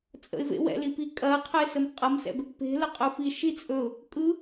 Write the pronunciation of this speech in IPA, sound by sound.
t͡sʼə̰ɪ̯vḛ wɛ̰lipi kʼɐqʰəɪ̯səm qʼɐmsɛ̰b | pe̤lə qʼɵfiʃi t͡sʼɵʊ̯ | kʼɯ

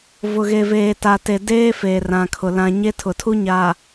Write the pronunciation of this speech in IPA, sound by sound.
vʊ˨ɣe˨veː˨ ta˨te˨ deː˦ feː˨rã˨kʰʊ˨ lã˨ɲe˦ tʰʊ˨tʰu˦ ɲa˨

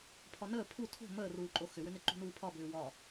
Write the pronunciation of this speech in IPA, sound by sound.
pʰɒnəː pʰu tʰo̤ məːruː ǃʼoxʏwʏnɪ ǃṳnuːpʰɒbʏː wɒ

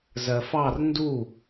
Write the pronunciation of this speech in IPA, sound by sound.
zɜfɑr ndu

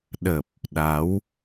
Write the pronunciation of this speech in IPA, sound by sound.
ɗə˨˩p̚ | ɗa˨˦w

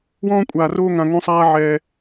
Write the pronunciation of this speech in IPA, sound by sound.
wɔ̃ː˧kʷʼaː˨roː˧ ŋã˧ŋõ˦sˤaː˦ʕɛː˧

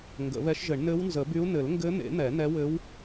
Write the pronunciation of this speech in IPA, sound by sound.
ŋɡə̰˨˩˦βɛ˧˥ʃʒɘ˨˩˦ɳ nɘ˧˥wnzə˨˩˦by˧˥u̯ nɘ˨˩˦lŋɡɘ˧˥n̪ḛ˨˩˦ n̪ɛ˨˩˦nɛ˧˥wɘ˧˥w

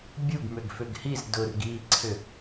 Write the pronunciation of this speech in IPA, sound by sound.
bʲuɡmʏɡ fʏɡhiz dʊrɡiːǀʰʏ

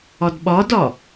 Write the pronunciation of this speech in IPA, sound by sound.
ɒdɓɒdɒ

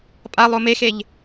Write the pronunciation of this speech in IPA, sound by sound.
pʼalˠo mexeʎ

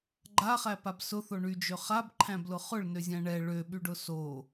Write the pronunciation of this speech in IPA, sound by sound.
ɡ͡ǃaχæpab sʊθo ɳyd͡ʒø χabǃʰæ̃blʊ χʊɭnøzʲæ̃ ɳɛ ɭøɓyɖʊ so

